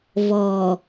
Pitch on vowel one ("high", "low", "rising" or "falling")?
low